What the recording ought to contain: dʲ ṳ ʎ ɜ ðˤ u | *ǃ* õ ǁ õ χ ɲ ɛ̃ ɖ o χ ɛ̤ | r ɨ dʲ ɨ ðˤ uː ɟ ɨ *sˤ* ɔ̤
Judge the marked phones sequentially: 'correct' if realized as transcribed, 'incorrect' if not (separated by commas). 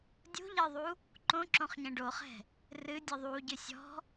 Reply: correct, incorrect